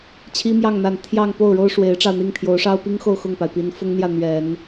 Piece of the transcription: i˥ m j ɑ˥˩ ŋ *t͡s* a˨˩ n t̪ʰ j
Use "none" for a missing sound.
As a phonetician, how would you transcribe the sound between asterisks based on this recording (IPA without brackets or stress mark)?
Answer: n̪